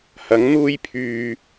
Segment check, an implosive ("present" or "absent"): absent